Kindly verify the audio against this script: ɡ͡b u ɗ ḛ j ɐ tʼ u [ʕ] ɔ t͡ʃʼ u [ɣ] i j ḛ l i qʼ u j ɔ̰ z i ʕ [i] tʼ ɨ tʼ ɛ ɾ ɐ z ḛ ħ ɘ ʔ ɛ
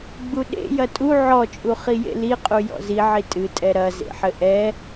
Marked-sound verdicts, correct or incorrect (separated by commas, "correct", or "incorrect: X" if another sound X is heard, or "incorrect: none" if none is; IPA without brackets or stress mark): correct, incorrect: χ, correct